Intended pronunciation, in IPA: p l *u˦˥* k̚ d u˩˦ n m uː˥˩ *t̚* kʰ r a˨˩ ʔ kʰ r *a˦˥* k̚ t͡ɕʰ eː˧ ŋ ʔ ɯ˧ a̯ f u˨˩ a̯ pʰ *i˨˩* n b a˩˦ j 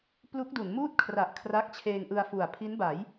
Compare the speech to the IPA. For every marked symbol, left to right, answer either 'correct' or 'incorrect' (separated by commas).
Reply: correct, correct, correct, incorrect